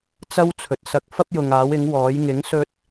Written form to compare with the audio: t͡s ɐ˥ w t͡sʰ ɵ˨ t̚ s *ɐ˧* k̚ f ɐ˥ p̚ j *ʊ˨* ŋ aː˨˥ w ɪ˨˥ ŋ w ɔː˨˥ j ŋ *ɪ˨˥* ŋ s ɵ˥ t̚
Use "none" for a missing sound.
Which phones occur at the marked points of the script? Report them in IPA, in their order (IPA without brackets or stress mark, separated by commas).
ɐ˧, ʊ˨, ɪ˨˥